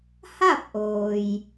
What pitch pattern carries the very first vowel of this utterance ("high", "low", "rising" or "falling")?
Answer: falling